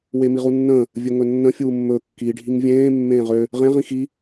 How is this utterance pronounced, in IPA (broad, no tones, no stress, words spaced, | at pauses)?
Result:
wemiʁunːə̃ː | vʲɵŋɵnːə̃ fʲuːmːɵ kːi ɖʱiŋvʲẽː mːẽːʁø | ʁẽ ʁĩxi